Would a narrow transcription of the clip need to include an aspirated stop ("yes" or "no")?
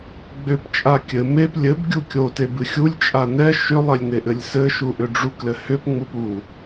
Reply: no